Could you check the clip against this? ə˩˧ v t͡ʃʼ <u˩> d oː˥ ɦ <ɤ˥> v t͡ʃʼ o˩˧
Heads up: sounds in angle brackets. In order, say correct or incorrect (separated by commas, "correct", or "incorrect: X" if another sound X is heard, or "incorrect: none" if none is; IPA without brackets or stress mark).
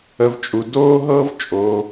correct, correct